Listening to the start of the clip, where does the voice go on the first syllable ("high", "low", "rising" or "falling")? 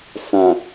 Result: low